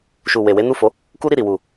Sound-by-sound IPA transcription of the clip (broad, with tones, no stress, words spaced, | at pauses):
ʃu˨we˨ we˨˦nu˦˨fo˨˦ | ku˦ɾi˦˨ɾi˨ wu˨